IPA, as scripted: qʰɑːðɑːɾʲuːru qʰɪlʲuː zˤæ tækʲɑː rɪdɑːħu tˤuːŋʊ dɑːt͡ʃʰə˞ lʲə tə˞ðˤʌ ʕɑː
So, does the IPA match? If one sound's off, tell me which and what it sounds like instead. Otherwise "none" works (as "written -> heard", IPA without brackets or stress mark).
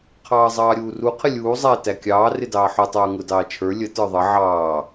ð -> zˤ